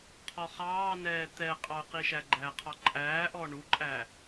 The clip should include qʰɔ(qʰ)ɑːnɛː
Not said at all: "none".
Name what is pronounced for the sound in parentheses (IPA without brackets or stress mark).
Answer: χ